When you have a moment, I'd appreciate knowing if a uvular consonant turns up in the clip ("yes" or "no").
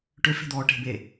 no